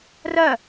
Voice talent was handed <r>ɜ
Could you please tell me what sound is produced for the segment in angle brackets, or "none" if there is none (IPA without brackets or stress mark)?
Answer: r